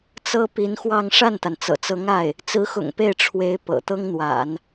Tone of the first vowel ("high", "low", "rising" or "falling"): high